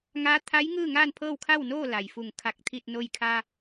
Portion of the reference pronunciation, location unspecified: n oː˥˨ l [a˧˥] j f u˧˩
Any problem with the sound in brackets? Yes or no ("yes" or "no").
yes